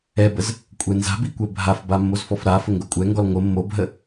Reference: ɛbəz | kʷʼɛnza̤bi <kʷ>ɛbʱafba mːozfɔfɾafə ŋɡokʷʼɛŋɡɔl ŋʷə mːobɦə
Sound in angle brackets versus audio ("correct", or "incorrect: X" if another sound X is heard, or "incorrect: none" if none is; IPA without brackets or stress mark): correct